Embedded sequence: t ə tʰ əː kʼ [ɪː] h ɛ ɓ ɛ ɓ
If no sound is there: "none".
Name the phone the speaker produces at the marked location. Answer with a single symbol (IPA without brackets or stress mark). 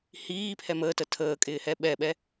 ɪː